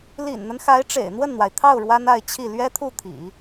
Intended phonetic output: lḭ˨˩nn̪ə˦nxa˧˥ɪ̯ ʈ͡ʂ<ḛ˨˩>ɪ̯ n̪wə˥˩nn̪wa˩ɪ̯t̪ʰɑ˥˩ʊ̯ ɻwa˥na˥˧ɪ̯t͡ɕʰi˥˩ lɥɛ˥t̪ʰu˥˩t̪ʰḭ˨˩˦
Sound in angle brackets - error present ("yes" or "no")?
no